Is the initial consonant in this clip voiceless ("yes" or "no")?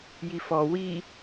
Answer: no